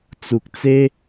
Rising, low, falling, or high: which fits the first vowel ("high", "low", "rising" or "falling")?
low